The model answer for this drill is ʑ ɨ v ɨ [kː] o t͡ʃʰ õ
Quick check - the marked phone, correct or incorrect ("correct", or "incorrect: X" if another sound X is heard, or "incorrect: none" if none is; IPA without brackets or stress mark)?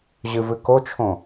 incorrect: k